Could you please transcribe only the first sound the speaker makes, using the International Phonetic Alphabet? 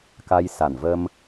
k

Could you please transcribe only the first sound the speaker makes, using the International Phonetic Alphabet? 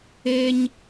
e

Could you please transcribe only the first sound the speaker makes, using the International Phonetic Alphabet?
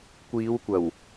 kʷ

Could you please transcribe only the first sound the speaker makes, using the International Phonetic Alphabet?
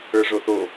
ə˞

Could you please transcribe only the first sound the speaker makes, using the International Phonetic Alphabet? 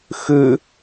x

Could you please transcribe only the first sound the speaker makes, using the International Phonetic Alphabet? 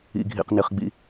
ḭ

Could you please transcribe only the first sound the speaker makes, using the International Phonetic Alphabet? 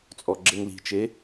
t͡sʼ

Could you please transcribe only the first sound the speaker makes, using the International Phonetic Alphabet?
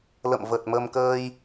l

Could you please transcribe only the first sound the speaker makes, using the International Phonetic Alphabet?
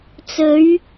t͡s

